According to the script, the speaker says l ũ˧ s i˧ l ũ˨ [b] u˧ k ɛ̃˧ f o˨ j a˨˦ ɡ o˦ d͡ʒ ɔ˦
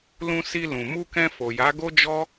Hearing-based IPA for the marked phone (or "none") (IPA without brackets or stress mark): m